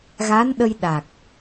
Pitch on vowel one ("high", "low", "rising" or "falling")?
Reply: rising